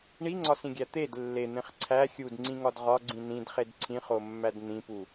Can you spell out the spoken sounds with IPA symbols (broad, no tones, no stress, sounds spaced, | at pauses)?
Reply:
ɳ i ŋ͡ǀ ɒ s ĩ ɡʲ æ t̪ e d lː e n̪ ẽ χ ǀʰ æ xʲ u d ŋ͡ǀ ĩ ŋ ɒ d ʁ ɒ ɡ͡ǀ ĩ n ĩ d χ e d ǀʰ ĩ χ o mː æ d n̪ ĩ p u